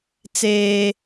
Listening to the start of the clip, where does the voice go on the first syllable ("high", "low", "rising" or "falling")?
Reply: high